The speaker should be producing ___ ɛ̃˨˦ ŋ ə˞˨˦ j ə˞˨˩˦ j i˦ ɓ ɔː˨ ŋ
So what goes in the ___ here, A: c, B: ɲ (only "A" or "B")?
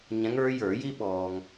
B